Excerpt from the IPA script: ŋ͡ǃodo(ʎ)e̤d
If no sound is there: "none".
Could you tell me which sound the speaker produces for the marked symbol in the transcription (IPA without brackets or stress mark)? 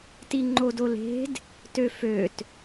l